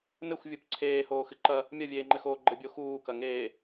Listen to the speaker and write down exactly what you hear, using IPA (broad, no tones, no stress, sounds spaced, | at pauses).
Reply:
n ɘ xʷ vʲ u p ǀʰ eː h oː x ɨ ǃ ɐ | mʲ ɐ vʲ eː ŋ͡ǃ ɘ x oː ɡ͡ǃ ɘ bʲ o x uː k ɐ ŋ eː